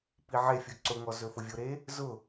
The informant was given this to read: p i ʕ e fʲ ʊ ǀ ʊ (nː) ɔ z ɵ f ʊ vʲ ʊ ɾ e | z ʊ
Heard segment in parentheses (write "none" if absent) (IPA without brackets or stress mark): ŋ